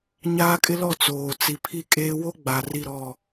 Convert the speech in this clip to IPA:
ɲ aː˦ kʼ ɪ˦ l ɔ˦˨ t͡s oː˨ t͡s i˨ pʰ i˦ kʼ eː˦ w o˦ ɡ͡b a˨ r i˦˨ ɾ ɔ˦˨

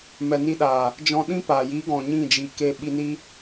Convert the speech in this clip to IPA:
m ɛ˨ n i˧ ɗ aː˨ | d͡ʒ ɔ̃˧ ɗ ĩ˦ p aː˨ j iː˨˦ ɡ ɔ̃˨ ɲ ĩ˦˨ d͡ʒ i˨ k eː˧ ɓ i˧ n i˦

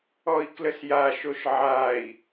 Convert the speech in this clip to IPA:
ɔ i̯ k l ə s j a ʃ o ʃ ʕ a i̯

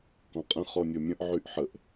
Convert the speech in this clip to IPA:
k ɔ̃ qʼ ə̃ χ ɔ nʲ ɤ mʲ ə̃ ʔ ʕ y ʔ ħ ə ʔ

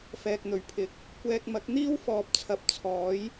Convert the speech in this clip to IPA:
f ɛː˨ k̚ n̪ ɵ˨˩ ɥ pʰ ɪ˨ k̚ | kʷ ɛː˧ k̚ m ɐ˨˥ k̚ n̪ iː˥ w f ɔː˨ p̚ t͡sʰ ɐ˨ p̚ t͡sʰ ɔː˨˥ j

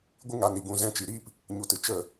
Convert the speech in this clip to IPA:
ɡʷ ɨ˦ ŋ a˧ n i˨ ɡ ũ˧ z ɛ̃˧ t͡ʃ i˨ ɾ iː˦ p | ɲ u˨ t ɨ˨ t͡ʃ ə˦˨

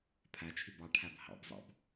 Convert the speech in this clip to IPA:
pʰ æ t͡ʃʰ y b ɑ ʈʰ æ b h ɑ̰ b zˤ ɑ̰ b

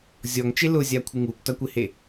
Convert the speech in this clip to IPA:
zʲ ɔ ŋ t͡ʃ e l ʊ zʲ a kʷʰ ɪ ŋ uː kʷ t a kʷ ɪ h e

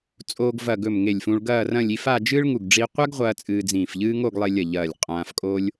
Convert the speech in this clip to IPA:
t͡sʼ oː˧ ɡ v ɐ˧˩ ɡ ɵ˧˩ m ŋ e˧˩ lʲ f ũ˧ ɭ ɡ ɐː˥˧ r ɐ̃˥˧ lʲ i˥˧ f a˥˧ d͡ʒ ɨː˥ ɭ ŋ u˧˩ ɡ ɖ͡ʐ i˧ qʷ a˥ ɡ ʁʷ ɐː˧ t͡sʼ ɨː˧ d͡z ĩː˧˩ f ʎ ɨː˥ ŋ o˥˧ ɡ lˠ e˧ lʲ ɐ˧˩ ʎ ɐː˧˩ lʲ qʼ ãː˧ f kʼ oː˥ lʲ

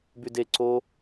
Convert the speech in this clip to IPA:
b y d e ǀ o

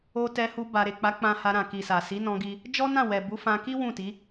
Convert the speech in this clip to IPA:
o˦ t ɛ˧ h u˧ b a˨ ɾ e˨ k͡p a˨˦ k͡p ã˧ h a˧ ɾ ã˨ k i˨ s a˨ s i˨˦ n ɔ̃˧ ɡ i˧ | d͡ʒ ɔ˦ n ã˦˨ w ɛ˨ b u˨˦ f ã˧ k i˦ w ũ˦˨ t i˨˦

